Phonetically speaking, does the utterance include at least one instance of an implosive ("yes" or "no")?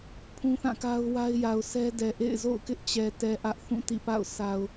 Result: no